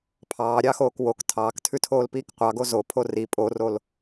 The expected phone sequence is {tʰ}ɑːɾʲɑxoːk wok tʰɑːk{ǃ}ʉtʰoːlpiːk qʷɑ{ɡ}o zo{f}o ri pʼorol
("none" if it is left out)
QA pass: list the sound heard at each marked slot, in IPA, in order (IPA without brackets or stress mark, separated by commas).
pʰ, tʰ, ɡ, pʰ